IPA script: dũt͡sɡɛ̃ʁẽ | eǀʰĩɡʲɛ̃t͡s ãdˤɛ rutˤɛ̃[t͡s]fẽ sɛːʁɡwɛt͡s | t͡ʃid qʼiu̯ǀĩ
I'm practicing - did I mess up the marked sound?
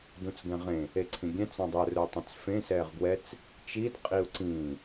no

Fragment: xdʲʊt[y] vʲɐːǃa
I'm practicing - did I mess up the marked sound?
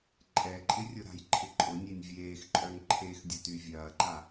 no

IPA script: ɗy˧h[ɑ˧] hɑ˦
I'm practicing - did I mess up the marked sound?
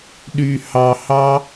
no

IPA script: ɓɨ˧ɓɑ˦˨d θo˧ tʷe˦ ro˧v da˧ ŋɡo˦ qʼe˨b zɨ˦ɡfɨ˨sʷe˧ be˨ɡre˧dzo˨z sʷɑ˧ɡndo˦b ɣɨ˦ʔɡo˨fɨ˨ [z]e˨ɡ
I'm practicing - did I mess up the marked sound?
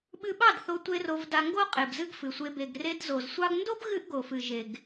yes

